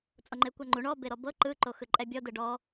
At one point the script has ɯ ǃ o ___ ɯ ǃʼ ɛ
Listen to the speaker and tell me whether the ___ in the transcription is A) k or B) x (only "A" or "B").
B